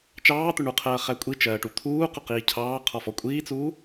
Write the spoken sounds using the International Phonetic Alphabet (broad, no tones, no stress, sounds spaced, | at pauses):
t͡ʃ ɑː t̪ ʊ ɳ u qʰ ɜː χ æ kʷʼ i t͡ʃ ɜː ʈ u t̪ʰ uː q ʊ q iː cʰ ɑː qʰ ɔ f ɔ kʷʼ iː t͡s uː